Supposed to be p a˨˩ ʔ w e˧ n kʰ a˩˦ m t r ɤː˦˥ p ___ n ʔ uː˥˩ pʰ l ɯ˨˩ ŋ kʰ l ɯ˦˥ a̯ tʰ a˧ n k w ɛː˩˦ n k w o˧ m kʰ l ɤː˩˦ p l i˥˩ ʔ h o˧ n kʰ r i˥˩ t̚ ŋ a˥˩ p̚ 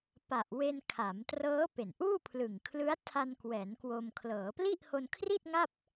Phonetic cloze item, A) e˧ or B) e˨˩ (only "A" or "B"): B